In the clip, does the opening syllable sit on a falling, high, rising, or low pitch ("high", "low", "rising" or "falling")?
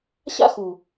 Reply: high